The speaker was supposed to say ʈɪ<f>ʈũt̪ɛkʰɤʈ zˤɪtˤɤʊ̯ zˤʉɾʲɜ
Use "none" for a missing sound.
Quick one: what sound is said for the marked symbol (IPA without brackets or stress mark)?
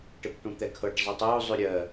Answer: p